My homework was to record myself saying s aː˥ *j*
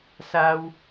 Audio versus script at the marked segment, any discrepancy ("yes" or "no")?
yes